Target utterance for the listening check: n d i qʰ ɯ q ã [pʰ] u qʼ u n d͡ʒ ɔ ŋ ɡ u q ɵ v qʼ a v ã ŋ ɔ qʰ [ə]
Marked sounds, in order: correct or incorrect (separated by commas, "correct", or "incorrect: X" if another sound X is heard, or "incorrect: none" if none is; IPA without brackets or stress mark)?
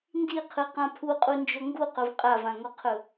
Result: correct, incorrect: ɵ